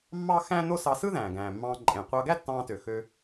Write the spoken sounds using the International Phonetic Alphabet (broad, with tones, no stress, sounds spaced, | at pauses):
mː ɑ˥ x æ̃˥ n o˥ s ɑ˧ s ɯ˥ ð æ̃ː˩ ɡ æ̃ː˩ mː ɑ̃ː˧ ǃʼ ẽ˩ qʷ ɑ˧ ɡ æ˥ tː ɑ̃ː˧ t ø˩ x ø˧